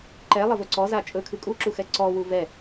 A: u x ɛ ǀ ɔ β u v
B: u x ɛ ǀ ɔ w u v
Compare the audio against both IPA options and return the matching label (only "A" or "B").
B